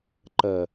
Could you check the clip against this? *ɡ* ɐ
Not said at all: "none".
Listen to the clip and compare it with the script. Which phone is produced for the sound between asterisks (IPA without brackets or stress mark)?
ǃ